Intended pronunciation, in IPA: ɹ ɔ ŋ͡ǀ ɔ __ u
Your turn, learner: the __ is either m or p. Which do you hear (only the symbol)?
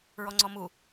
m